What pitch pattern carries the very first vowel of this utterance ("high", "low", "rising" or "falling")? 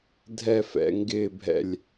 falling